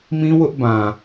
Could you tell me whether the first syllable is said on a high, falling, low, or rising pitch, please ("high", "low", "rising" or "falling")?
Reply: high